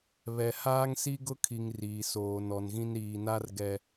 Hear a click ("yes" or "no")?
no